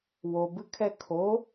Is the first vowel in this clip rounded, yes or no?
yes